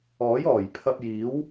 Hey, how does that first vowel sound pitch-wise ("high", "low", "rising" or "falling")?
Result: rising